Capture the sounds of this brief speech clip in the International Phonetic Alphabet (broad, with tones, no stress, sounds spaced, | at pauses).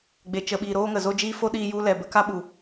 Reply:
ɡ͡b e˨ t͡ʃ ə˨ ɓ iː˨ ɾ oː˦ ŋ ə˨ z o˦ d͡ʒ iː˦ f o˦ ɗ iː˧ j u˧ l ɛ˨ b ə˨˦ k a˦ ɓ u˨